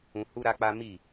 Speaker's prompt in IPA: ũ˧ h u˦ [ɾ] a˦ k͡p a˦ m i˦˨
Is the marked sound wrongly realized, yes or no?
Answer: no